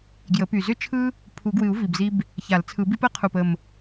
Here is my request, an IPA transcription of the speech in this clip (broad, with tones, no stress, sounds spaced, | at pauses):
ɡ j ə˨˩˦ p y˨˩ z ʏ˥ t͡ʃʰ ɯ˥ | pʰ u˨˩˦ ɡ w ɨ˨˩˦ u̯ v i˨˩ b z i˥ b | ç a˨˩˦ l t͡sʰ ɯ˨˩˦ b i˥ p ə˥ qʰ u˨˩ p ə˨˩ m